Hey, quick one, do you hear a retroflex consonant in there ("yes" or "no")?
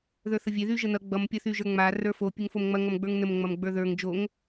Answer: no